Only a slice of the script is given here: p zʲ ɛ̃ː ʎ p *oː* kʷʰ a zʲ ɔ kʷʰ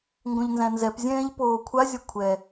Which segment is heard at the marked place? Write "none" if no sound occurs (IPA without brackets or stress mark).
oː